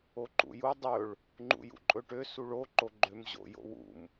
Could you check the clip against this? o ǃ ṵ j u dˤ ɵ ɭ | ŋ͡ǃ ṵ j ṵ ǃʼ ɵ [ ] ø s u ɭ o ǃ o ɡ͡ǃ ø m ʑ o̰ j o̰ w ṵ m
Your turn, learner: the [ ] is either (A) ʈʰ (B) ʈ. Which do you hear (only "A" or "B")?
B